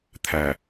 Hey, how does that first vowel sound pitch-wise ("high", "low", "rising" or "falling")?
low